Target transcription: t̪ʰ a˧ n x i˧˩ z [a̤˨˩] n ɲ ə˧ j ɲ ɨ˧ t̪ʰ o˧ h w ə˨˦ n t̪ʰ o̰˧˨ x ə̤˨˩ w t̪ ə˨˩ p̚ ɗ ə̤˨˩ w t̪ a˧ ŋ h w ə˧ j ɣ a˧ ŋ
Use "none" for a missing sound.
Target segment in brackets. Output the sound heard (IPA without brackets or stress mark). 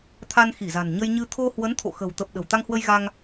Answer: a̤˨˩